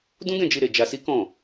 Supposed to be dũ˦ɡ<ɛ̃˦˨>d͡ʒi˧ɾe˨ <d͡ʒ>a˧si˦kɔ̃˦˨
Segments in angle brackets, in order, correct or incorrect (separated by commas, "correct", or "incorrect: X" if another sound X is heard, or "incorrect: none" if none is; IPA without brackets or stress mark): correct, correct